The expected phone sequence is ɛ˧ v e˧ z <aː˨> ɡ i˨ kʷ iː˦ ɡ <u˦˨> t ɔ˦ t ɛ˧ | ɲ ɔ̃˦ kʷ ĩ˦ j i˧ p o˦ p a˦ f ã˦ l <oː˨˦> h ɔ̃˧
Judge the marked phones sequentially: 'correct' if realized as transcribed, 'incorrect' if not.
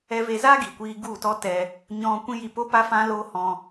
incorrect: aː˦, correct, incorrect: oː˦

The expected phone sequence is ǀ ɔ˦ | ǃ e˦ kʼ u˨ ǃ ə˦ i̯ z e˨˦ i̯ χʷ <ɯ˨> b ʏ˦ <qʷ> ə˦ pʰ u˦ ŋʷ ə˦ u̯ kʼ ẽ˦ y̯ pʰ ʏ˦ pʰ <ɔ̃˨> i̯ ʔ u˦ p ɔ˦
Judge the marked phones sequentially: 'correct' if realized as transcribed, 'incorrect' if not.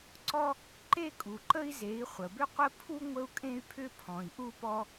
incorrect: ə˨, correct, correct

